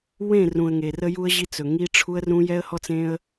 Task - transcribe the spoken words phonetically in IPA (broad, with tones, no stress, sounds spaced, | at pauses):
w ẽ˦˨ r ũ˨ ə̯ ŋ e˨ r ə˦ j u˦ ə̯ ʑ i˦ t͡s ɵ˨ ŋ i˦ ʈ͡ʂʰ u˦ ə̯ r ũ˦ j ɛ˦ ə̯ h ɔ˦ t͡s ẽ˦ ə̯